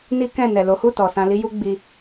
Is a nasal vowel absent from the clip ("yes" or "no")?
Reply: no